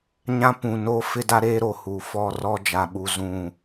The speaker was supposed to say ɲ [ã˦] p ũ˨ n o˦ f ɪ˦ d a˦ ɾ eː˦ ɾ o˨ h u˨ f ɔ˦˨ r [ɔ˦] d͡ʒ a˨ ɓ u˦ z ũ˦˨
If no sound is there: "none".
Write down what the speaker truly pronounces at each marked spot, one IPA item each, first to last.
ã˦, ɔ˦

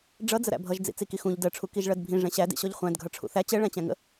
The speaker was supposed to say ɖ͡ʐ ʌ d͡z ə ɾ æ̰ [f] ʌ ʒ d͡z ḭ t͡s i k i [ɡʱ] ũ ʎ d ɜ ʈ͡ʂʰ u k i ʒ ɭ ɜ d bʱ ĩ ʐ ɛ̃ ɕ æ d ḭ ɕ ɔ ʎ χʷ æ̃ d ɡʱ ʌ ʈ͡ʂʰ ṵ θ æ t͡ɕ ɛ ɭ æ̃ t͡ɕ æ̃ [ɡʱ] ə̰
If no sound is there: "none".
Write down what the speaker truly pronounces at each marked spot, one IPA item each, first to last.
bʱ, x, ŋ

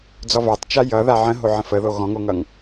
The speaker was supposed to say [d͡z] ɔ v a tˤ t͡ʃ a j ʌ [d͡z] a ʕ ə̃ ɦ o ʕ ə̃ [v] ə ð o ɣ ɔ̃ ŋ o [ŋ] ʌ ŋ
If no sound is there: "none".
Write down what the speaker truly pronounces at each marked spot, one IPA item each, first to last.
d͡z, ð, f, ŋ

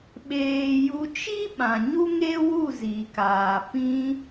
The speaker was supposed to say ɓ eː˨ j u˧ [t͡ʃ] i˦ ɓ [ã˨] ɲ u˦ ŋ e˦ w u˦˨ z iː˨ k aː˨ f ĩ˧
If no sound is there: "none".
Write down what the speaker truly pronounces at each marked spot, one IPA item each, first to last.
t͡ʃ, ã˨

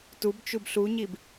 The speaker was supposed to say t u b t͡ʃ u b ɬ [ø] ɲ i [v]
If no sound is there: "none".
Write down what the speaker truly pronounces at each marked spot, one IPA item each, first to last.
u, b

